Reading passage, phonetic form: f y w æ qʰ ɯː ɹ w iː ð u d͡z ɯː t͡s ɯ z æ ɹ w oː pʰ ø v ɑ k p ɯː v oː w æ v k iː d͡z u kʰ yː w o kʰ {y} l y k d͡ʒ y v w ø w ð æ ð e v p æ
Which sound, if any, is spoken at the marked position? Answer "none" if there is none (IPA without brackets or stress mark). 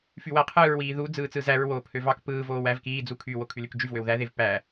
y